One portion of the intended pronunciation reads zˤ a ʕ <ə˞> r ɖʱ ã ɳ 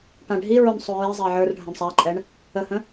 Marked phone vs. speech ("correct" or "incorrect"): correct